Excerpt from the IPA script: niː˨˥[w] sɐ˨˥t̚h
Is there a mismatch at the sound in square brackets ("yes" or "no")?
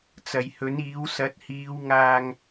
no